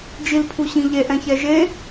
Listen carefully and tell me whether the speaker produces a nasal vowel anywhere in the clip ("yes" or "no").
yes